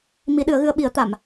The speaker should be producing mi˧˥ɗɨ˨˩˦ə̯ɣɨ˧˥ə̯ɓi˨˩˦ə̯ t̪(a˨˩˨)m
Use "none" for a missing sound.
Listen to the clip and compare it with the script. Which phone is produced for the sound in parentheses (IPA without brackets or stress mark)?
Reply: a˨˩˨